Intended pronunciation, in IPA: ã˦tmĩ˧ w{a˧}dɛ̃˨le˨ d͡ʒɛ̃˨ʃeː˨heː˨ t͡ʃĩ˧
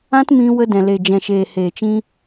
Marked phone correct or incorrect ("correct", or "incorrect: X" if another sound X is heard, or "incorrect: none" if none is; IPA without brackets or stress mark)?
incorrect: ə˧